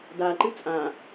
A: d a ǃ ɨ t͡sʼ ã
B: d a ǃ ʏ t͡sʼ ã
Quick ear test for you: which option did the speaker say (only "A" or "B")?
A